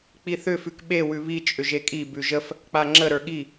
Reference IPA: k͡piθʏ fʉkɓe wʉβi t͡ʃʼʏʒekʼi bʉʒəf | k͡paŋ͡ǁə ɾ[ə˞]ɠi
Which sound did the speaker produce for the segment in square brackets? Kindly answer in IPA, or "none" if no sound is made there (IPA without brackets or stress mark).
ə˞